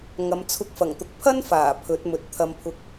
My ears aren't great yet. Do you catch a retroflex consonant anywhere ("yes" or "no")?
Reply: no